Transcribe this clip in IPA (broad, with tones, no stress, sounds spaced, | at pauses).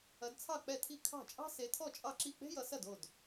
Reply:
ɐ˨˦ d t͡sʰ ɑ˥˩ k͡p ɛ˥˩ tʰ i˥˩ kʰ ɑ̤˥˩ t͡ʃʼ ɑ̤˥ s e˨˦ tʰ ɔ˥˩ t͡ʃʼ ɑ˥˩ ǁ i˥˩ k͡p e̤˥ j ʌ˨˦ s ɐ˥˩ d o˥˩ d